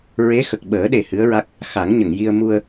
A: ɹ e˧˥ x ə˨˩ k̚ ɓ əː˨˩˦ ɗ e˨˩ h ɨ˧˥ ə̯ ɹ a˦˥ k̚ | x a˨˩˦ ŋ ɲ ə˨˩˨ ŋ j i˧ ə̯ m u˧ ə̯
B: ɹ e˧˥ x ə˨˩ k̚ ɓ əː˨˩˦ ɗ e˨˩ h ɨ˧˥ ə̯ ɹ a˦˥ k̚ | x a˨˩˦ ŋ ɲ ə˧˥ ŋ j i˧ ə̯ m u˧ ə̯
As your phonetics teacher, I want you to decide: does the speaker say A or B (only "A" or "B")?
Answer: A